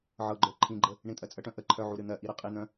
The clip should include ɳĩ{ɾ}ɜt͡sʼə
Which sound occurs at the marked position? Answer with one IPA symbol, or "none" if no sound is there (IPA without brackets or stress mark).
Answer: tʼ